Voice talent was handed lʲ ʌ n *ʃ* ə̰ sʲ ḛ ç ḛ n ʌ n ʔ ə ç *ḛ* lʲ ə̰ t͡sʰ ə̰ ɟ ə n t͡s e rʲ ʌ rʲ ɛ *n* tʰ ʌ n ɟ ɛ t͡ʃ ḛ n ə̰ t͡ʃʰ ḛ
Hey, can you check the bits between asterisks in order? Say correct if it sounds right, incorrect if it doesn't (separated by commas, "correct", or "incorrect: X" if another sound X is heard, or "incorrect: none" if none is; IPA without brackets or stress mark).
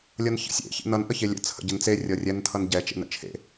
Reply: incorrect: ç, incorrect: e, correct